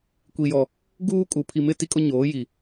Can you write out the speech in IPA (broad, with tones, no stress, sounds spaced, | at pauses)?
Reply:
kʷ i˨ j ɔ˨ | ɡ uː˦ kʼ u˨ pʰ i˨ m ɪ˦˨ t i˦ kʼ ʊ˦ ɲ oː˨˦ j i˨